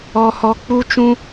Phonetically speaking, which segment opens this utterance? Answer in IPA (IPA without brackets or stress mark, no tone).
ɔ